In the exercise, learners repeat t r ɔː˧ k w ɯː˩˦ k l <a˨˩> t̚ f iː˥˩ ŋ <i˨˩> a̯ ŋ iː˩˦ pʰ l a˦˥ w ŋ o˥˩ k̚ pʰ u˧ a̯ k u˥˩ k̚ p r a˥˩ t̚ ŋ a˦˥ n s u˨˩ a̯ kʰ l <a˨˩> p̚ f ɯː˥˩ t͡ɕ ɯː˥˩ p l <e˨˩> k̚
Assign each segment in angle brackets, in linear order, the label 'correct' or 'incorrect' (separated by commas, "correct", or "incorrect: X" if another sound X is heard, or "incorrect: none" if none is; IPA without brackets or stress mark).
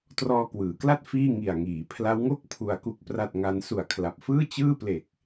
incorrect: a˥˩, correct, correct, correct